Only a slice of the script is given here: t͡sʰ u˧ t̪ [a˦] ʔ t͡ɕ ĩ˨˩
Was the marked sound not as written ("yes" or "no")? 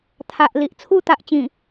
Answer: yes